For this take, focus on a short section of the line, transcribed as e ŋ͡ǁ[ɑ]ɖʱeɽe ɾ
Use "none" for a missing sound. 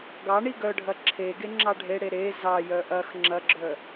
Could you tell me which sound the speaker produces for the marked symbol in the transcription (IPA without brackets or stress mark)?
ɑ